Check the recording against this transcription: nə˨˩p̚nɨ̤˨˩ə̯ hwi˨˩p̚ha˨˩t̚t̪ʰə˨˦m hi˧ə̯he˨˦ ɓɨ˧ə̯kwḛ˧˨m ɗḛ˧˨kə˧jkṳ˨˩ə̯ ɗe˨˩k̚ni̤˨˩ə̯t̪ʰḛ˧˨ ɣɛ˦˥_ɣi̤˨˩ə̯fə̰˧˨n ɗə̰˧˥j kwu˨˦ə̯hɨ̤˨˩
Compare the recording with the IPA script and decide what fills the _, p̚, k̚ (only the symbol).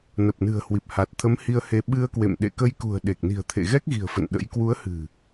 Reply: k̚